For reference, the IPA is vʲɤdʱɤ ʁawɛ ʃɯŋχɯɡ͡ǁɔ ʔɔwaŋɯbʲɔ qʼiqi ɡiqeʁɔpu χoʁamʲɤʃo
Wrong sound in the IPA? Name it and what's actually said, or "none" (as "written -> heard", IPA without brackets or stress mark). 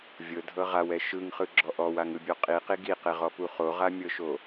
none